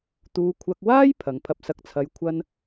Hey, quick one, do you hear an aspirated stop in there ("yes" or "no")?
yes